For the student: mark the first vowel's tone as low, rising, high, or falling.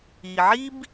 low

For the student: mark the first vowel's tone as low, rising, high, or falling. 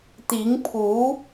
rising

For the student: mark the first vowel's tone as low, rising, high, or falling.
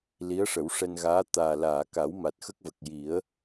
rising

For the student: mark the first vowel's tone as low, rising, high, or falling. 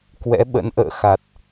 rising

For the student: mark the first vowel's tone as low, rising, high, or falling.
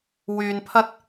low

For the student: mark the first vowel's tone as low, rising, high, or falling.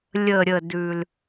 low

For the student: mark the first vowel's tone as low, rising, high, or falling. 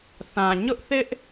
low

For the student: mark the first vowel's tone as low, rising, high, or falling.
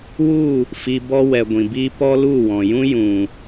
falling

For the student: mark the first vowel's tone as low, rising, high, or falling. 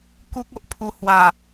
high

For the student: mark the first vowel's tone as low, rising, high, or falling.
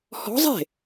rising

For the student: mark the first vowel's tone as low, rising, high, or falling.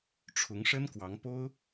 rising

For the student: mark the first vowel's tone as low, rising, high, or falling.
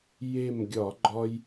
falling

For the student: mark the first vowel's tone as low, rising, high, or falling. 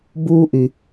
high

